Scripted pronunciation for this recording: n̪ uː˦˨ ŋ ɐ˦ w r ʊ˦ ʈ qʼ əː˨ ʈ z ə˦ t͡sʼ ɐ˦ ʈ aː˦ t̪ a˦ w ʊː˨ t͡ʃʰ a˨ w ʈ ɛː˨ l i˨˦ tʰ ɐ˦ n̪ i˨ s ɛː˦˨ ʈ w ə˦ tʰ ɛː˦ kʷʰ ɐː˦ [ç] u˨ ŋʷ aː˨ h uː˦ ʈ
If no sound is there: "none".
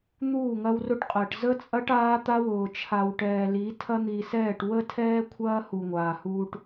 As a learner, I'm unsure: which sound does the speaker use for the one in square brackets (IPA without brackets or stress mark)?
h